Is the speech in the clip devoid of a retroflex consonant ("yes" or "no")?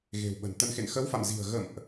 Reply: yes